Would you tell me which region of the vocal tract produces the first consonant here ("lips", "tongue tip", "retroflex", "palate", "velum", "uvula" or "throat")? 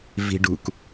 lips